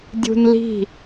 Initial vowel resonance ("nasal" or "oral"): oral